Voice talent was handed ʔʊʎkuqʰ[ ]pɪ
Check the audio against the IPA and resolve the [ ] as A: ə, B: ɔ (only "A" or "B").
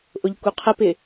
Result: A